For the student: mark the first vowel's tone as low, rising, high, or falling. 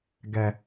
low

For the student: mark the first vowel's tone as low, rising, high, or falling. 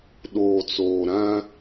low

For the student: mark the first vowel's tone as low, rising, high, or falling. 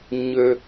high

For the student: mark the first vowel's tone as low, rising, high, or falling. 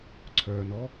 low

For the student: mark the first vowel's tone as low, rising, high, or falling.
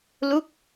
falling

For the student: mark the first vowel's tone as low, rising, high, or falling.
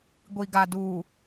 low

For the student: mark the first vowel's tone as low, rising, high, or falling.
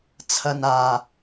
low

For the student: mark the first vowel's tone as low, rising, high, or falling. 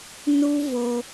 high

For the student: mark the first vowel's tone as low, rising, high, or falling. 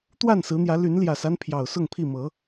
falling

